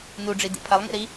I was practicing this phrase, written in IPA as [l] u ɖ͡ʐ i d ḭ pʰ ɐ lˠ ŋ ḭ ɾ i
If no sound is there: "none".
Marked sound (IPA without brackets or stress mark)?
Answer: n